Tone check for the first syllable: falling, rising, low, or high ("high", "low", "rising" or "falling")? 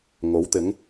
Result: rising